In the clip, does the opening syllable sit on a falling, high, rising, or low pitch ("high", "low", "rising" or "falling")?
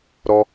high